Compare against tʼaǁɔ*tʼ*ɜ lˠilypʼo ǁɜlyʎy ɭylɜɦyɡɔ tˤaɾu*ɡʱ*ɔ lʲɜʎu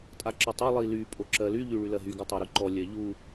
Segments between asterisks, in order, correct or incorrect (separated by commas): incorrect, incorrect